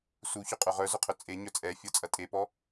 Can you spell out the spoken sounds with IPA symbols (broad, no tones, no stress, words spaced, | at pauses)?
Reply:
suçʏqʼø ʁœzʊqʰʏ t͡sʼe ɲœt͡sʼɛ fʲɔt͡sʼɐtʼepɔ